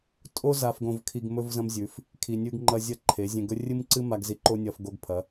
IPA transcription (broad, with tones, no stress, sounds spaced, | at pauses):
tʼ o˦ z a˧ f ɡ õ˧ v kʰ i˧ ɡ m ɵ˦ v z ɐ̃˦ m zʲ ʉ˨˦ f | kʰ i˨ nʲ ʉ˧ ɡ ŋ͡ǃ ɐ˧ zʲ ɐ˦ ǃʰ e˨˦ zʲ ẽ˧ ɡ ɵ˦ rʲ ɨ˦ m ǀ ɨ˦ m a˧ ɡ z i˧ ǃ o˦ nʲ ɐ˧ f ɡ o˧ ɡ pʰ ɐ˨˦